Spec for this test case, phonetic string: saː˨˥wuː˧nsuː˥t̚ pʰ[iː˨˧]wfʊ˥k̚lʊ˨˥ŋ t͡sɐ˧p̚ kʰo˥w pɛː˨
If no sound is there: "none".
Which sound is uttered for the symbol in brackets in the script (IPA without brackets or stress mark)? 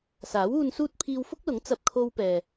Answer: iː˧